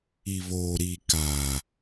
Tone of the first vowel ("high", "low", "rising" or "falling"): low